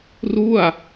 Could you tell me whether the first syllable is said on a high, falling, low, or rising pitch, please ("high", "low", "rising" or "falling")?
falling